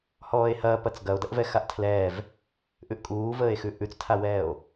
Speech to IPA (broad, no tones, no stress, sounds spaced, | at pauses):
h ɔː e̯ h ɐː p ɐ t͡s ɡ ɐ o̯ d ɐ ʔ v ɛ x a ʔ tʰ l ɛː v | ʔ ʉ ʔ kʼ uː v əː e̯ x ʉ ʔ ʉ t͡s tʰ a w ɛː o̯